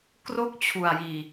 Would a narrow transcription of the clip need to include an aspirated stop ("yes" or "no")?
yes